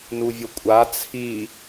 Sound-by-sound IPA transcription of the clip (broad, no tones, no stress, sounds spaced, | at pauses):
n u vʲ o kʷʼ a t͡sʰ i